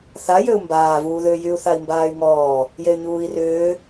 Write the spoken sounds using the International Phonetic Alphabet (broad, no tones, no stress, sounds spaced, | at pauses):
θ a j ø u̯ m b aː v uː ð ʏː j y u̯ θ a i̯ m b aː y̯ ŋ ɔː | j e y̯ ɲ uː i̯ r ʏː